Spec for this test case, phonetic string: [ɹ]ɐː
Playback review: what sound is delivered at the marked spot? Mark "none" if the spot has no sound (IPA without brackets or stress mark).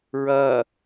ɹ